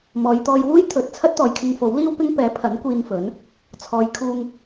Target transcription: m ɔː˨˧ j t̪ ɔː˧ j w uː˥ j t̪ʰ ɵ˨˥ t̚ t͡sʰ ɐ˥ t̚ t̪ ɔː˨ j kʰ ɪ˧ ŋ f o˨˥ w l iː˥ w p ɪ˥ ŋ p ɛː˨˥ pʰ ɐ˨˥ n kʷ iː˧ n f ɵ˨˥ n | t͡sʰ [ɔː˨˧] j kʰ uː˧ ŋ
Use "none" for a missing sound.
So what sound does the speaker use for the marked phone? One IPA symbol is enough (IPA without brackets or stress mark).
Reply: ɔː˨˧